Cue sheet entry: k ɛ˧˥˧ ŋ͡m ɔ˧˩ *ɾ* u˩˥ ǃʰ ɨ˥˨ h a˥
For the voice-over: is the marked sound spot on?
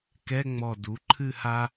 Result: no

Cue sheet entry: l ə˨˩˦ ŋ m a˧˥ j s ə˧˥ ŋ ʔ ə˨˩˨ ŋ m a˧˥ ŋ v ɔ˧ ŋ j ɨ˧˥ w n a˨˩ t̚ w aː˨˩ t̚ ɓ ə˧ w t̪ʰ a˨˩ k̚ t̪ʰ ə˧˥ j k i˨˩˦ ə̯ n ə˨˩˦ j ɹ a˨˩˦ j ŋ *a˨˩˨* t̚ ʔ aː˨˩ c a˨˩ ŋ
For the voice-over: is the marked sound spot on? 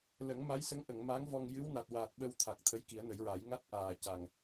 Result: no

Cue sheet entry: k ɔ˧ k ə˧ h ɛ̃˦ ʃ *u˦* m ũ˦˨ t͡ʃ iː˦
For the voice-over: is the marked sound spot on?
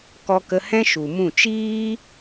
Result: no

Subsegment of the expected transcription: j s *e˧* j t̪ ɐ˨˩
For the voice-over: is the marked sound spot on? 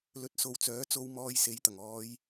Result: no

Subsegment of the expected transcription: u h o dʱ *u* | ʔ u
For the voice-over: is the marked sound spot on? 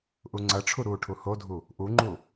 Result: yes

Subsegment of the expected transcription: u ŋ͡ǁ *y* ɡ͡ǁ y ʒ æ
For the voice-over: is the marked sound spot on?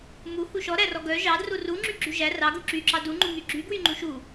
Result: yes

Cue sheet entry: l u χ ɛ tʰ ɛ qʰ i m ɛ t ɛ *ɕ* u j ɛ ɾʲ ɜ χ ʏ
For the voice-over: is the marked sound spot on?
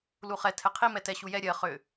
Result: yes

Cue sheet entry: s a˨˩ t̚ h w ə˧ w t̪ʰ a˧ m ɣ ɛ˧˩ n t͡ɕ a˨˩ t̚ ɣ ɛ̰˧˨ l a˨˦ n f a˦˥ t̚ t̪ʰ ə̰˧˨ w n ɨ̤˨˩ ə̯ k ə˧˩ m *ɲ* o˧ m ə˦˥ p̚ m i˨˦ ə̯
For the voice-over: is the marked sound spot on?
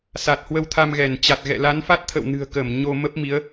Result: yes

